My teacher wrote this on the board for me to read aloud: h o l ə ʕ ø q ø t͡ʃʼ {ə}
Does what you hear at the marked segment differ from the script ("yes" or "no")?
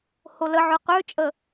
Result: no